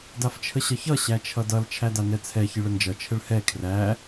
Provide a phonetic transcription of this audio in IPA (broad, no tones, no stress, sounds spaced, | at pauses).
d a f t͡ʃʰ ə ɕ ʌ ç ʌ ɕ æ t͡ʃʰ ʌ d ʌ l t͡ʃʰ æ d a n ɛ t͡sʰ ɛ ç ɨ ɭ ə n d͡ʒ ʌ t͡ʃʰ ə ɭ h ɛ kʰ r æ